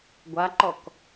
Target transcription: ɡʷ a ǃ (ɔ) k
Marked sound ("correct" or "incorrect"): correct